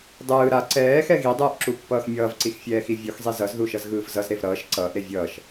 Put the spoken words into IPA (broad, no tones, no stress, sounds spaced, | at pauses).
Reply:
dˤ ɯː ɾ a ǀ ɛː x ɛ ɣ i dˤ ɯː ʔ ǁ u pː ʌː x mʲ ʌː v ǀ i x fʲ ɛː x i vʲ o x zˤ i z ʌ z ð u ʃ ʌ z ɣ ɯː v z ʌ z ɾ e v ɾ ʌː ʃ ǀ ʌː ʔ ɾ e vʲ ʌː ʃ